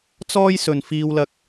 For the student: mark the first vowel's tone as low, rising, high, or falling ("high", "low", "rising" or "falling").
high